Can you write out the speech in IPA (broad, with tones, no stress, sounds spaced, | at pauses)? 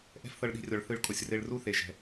ʔ ɛ̤˦ f θ ɤ˧ ɭ ɗ i̤˧ rʲ ɔ˨ ɭ θ ɯ˧ ɭ kʼ o˨ sʲ r e˧ ɭ r u˦ θ e˨ ʒ ɛ̤˨